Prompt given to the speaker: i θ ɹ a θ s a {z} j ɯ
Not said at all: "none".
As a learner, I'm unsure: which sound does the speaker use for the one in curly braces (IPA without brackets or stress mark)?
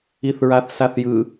θ